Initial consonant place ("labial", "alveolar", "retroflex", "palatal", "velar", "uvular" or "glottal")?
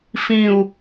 labial